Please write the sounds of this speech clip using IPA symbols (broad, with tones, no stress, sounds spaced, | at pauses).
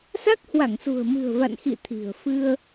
s a˦˥ k̚ h w a˧˩ ŋ s ṳ˨˩ ə̯ m ɨ̤˨˩ ə̯ v a̰˧˨ n x ḭ˧˨ t̪ʰ i̤˨˩ ə̯ f ɨ˧ ə̯